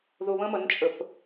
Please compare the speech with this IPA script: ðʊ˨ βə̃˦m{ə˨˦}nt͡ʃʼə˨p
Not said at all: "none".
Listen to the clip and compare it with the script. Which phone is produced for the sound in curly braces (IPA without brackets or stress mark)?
ə˨˦